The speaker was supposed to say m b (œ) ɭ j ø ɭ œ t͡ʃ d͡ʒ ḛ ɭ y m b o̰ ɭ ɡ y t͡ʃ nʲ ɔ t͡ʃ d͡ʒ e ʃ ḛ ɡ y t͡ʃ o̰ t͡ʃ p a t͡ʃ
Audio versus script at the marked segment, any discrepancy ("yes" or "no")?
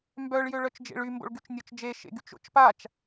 no